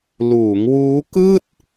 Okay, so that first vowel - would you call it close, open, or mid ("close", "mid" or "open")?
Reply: close